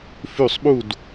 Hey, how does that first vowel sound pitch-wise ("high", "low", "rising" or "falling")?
falling